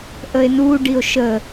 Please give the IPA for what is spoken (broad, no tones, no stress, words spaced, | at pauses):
ʔəe̯nu ɖio̯ʃə